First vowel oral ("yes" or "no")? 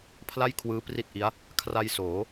yes